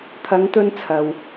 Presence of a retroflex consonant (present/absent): absent